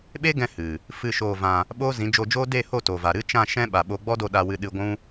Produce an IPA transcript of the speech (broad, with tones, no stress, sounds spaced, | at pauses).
ɓ e˦ ɡ ɛ̃˧ h ɨ˨ | f ɨ˦˨ ʃ oː˧ v ã˧ | ɓ oː˦ z ĩ˨˦ d͡ʒ o˧ d͡ʒ oː˦ d e˦˨ h o˦˨ t o˨ v a˨ ɾ ɨ˦ t͡ʃ ã˦˨ ʃ ɛ̃˦ ɓ a˨ ɓ o˧ ɡ͡b ɔ˦ d o˧ ɗ a˧ w ɨ˧ ɗ ɨ˧ ɡʷ ũ˦